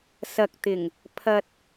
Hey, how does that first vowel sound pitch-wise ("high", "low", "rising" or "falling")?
low